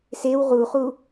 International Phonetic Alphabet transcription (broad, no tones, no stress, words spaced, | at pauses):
sew ʁuχu